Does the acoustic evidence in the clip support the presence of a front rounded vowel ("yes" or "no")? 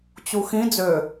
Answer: yes